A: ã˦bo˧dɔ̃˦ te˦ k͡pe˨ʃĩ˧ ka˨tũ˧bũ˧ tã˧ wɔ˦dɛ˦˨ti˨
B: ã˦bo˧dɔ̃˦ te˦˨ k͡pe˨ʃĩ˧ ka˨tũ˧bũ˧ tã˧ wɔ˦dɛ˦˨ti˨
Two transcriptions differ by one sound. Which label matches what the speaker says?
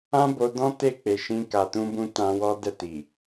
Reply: B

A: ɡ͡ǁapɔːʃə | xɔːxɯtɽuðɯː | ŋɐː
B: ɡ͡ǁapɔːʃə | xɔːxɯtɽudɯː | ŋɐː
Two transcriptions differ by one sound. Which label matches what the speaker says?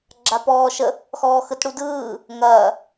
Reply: B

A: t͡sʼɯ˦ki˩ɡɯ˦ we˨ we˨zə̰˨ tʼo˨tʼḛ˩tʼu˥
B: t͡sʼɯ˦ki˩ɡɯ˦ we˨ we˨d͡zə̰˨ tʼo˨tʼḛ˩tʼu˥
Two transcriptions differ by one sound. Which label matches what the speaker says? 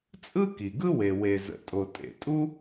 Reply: A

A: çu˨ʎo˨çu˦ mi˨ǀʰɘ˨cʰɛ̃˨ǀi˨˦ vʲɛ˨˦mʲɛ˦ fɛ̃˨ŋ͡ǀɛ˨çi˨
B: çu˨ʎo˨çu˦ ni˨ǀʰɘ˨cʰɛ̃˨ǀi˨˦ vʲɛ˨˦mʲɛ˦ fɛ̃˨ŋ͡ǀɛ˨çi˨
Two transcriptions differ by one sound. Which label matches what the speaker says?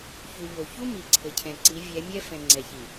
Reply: A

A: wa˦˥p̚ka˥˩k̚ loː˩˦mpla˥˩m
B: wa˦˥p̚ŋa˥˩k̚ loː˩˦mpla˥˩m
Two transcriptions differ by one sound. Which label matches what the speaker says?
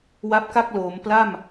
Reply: A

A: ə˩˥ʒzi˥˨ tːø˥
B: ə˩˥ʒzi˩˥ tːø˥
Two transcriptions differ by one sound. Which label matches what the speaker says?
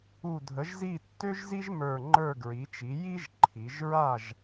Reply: A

